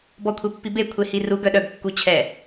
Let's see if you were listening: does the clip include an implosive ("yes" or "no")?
yes